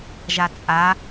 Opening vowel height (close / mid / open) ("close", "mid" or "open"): open